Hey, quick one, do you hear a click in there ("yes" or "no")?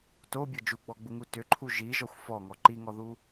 yes